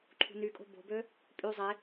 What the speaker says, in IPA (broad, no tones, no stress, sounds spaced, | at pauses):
ǃʰ ṳ n y kʼ o̤ b o̤ b ø | pʼ y zˤ e